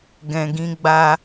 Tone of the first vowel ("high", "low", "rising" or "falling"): low